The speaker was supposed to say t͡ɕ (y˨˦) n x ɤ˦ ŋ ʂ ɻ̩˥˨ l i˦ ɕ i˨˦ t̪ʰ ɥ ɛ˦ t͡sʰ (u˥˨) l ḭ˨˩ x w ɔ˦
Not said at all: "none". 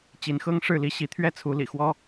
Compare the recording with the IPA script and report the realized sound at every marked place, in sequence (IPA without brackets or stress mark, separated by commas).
i˨˦, u˨˦